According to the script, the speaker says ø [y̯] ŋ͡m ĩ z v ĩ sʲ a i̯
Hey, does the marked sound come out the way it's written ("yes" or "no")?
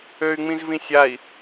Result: yes